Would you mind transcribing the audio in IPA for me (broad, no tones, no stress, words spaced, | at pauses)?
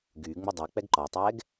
ɡyːŋ͡mu dˤɤ k͡pɛɡǃɔtˤɛːɡ